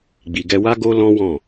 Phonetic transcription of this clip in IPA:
ɡ͡b i˨ ɡ ɛ˧ w a˦ ɡ o˦ l ɔ̃˦ w ɔ̃˦˨

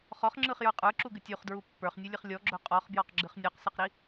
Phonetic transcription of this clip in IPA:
χ ɔ χ ŋ͡ǁ ɯ χ j ə˞ qʼ ə˞ ǁ u ɡ ɨ tʲ u χ d ɹ u pː ə˞ χ nʲ ɯ lʲ ɨ χ lʲ ɔ ɡ͡ǁ ɵ qʼ ɔ χ b j ɔ q ɡ͡ǁ ɨ χ nʲ ɔ q s ɨ q ɾ i

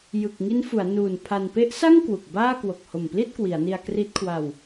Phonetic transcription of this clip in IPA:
j ɯ˨˩ k̚ ŋ i˦˥ n f u˩˦ a̯ n uː˨˩ n pʰ a˧ n p e˦˥ ʔ s a˥˩ ŋ k w u˨˩ k̚ b aː˥˩ k w o˨˩ k̚ h o˨˩ m p l i˥˩ t̚ k w i˩˦ a̯ n i˧ a̯ k r i˦˥ t̚ kʰ w a˧ w

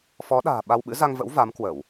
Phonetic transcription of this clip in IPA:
f ɔ˨˦ ɗ a̤ː˨˩ ɓ a˧ w ɓ ɨ̰˧˥ z a˧ ŋ v ə̰˧˥ w v a˨˦ m k w ə˧˩˨ w

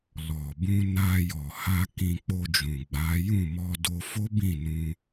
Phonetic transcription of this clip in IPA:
l ɔ˨ b ũ˧ n a˧ j ɔ˨ h a˧ k ĩ˧ k͡p o˧ d͡ʒ ũ˨ ɡ͡b a˨˦ j ũ˦˨ m ɔ˧ d o˧ f o˦ b ĩ˦˨ n ũ˧

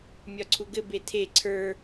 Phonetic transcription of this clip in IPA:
mʲ ɒ ǀʰ u ɡ ɘ b e tʰ e ǀʰ ə˞

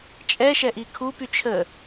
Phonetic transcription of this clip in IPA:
t͡ʃʼ ɛ ʃ ɛ ʔ i kʰ u p y t͡ʃʰ ə

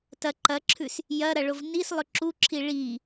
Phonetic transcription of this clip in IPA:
t ɐ ǃ ɐ ǁʰ ʉ s | j ɐ ɾ ɐ ɭ o v n i s lˠ ɵ ǁ u ǁʰ i ɭ i

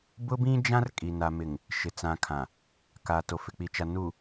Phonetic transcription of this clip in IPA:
b ʊ˦ b ĩ˦ d͡ʒ ã˦ r kʼ i˨ n a˨ m ɪ˨ ŋ | ʃ ɪ˨ t͡s ã˨ kʰ ã˨ | k a˨ t o˨ f ɪ˨ k͡p i˨ t͡ʃ a˨ n u˨

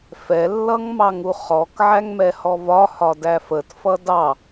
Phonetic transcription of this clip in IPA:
f ɛ lː ʌ ŋ m ɑ ŋ u χ ɔ k ʕ æ ŋ m ɛ h ɔ v ɒ h ɒ d æ f ə t f ʌ d ɑ

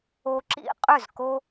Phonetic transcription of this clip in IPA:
o˧ ǁ ḭ˦ qʼ ʏ˦˨ z k o˦

